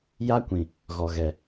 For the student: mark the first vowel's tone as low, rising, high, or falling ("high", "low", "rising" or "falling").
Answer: high